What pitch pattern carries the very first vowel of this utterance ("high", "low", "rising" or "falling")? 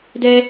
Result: high